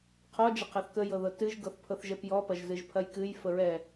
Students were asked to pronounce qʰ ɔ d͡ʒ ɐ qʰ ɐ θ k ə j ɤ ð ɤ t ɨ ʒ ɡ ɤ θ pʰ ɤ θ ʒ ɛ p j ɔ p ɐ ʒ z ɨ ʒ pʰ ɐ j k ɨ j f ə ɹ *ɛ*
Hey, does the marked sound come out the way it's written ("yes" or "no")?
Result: yes